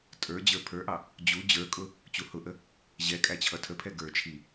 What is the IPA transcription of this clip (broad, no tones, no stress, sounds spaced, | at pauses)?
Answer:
tʼ ə˞ d͡ʑ ə˞ pʰ ə˞ ʔ ɑ | d͡ʑ u d͡ʑ ə˞ kʼ ʊ | t͡ɕ u h ʊ ʔ ə | ʑ ɛ kʼ æ t͡ɕʰ ʌ tʰ ə pʰ ɛ ɡ ə˞ t͡ʃʰ i